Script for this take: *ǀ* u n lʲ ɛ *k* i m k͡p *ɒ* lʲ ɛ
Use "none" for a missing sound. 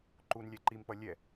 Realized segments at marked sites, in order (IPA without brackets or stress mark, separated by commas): ǃ, ǃ, ʌ